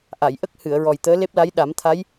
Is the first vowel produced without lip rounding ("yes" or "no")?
yes